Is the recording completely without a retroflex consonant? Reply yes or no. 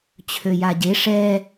no